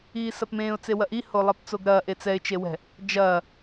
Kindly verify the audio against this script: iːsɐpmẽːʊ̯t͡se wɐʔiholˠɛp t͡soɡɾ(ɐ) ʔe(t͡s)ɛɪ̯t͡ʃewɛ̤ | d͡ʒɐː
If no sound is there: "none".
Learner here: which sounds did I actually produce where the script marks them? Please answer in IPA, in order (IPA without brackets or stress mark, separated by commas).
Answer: ɐː, t͡s